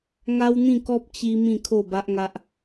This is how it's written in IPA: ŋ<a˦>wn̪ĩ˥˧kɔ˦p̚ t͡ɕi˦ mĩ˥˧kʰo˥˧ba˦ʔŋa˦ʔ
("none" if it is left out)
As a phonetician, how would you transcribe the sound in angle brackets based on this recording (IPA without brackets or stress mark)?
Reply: a˦